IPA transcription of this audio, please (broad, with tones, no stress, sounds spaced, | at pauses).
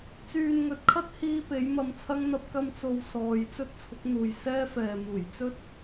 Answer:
t͡s yː˨ n ŋ ɵ˨ t̚ kʰ ɐ˥ t̚ h iː˧ p e˨˥ j m ɐ˧ m t͡sʰ ɐ˥ ŋ n̪ ɐ˥ p̚ k ɐ˧ m t͡s o˨ w s ɔː˨ j t͡s ɵ˥ t̚ t͡sʰ ʊ˨˥ k̚ n̪ uː˨ j s ɛː˥ f ɛː˨ m uː˨˩ j t͡s ɵ˥ t̚